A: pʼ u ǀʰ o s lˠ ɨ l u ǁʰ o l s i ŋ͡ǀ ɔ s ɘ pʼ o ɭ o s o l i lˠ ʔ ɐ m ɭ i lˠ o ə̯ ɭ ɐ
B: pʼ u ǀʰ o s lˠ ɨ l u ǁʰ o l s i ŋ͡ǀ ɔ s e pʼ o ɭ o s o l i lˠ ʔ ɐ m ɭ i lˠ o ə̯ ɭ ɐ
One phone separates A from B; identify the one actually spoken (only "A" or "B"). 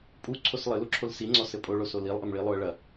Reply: A